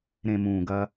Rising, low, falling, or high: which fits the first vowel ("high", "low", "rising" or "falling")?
low